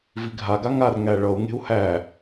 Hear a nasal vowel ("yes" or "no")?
no